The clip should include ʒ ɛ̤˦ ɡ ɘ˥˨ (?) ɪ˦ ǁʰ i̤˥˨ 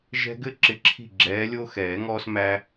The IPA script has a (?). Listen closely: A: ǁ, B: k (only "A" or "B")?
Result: A